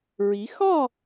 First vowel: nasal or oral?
oral